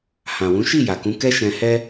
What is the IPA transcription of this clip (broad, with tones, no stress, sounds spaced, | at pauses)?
h ã˨ w ũ˨˦ ʃ i˦˨ j a˨ k ũ˨˦ k ɛ˦ ʃ ɛ̃˧ h ɛ˦